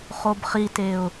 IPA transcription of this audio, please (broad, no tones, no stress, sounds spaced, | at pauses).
χ o b χ i t e ʊ̯